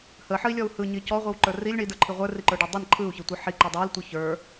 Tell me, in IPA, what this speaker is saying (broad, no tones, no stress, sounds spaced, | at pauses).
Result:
h ə ħ ə i̯ lʲ ɔ u̯ h ɯ ɲ i c ɔ ʁʷ i w ǃ ə˞ r i lʲ ɳ i d ə˞ ǃʰ i ʁʷ ə˞ r i ǃ ə˞ ɖ i dˤ ə n ǃʰ ɯ u̯ ç i tʷ ɯ ħ i ǃ i dˤ ə˞ l tʷ ɯ ç ə˞